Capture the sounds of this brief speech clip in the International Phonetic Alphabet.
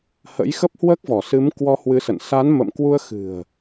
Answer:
hə̰˧˥jxə˦˥p̚ hwəː˦˥k̚vɔ˧˩sɨ˨˦m kwɔ˧hwɨ˨˦sə̰˧˨n sa˨˦nmə̰˧˨mkwu˧ə̯ xɨ̤˨˩ə̯

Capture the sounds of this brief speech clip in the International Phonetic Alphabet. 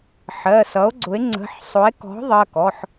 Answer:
ħɜ˩˧˩sʌ˩˥o̯ɡ͡ǀʊ˩˥e̯ ŋ͡ǀə̤˩˧˩ħ sˤʊ˩˥e̯ kɔ̤˩˥ ðˤɜ˩˧˩kɔ˩˧˩ħ

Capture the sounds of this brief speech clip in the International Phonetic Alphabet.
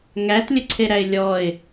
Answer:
ŋætlʲə ǀʰeɾæɪ̯lʲɔɪ̯

